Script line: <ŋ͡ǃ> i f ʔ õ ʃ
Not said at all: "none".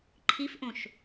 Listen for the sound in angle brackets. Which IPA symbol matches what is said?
ǃʰ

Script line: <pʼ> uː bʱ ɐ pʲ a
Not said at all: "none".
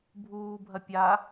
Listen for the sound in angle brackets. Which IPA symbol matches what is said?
bʱ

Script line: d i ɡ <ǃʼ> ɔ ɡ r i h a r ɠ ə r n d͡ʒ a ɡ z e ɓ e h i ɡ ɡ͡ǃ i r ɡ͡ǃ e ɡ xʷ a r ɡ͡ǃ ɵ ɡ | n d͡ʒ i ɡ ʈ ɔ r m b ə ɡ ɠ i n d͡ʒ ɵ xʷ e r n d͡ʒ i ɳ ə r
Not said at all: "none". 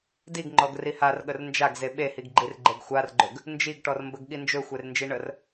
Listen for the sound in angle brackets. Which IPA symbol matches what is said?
ŋ͡ǃ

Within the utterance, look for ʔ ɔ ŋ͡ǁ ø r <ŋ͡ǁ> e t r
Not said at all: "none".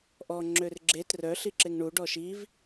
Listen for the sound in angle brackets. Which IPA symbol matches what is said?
ɡ͡ǁ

